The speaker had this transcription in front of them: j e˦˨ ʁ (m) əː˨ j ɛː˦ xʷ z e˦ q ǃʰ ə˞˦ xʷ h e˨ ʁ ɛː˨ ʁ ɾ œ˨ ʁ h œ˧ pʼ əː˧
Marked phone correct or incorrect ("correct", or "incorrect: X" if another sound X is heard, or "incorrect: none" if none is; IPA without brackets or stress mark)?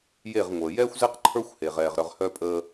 incorrect: ŋʷ